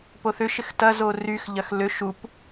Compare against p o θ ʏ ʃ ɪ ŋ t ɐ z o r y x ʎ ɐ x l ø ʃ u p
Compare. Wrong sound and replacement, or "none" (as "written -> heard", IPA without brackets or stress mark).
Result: ŋ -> x